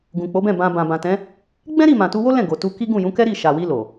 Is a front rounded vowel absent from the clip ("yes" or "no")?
yes